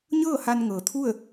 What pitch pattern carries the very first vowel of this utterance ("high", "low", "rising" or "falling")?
falling